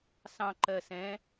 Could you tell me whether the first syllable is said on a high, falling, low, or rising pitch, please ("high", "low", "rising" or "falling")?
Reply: low